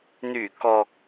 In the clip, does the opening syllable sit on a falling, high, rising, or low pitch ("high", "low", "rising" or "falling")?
low